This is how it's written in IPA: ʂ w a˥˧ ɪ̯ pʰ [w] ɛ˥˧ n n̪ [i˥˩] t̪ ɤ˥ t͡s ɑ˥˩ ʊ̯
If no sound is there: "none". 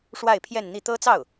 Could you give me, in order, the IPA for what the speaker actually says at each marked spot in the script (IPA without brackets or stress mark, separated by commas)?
j, i˥˩